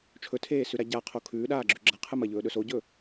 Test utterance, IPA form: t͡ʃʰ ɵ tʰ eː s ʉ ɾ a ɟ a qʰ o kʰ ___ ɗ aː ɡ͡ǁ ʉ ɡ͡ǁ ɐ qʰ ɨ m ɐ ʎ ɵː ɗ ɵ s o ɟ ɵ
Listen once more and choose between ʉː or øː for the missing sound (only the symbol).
ʉː